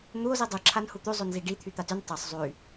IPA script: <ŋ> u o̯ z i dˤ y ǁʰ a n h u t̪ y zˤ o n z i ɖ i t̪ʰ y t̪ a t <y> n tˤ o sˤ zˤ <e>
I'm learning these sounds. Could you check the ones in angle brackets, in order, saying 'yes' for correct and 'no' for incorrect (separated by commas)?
no, yes, no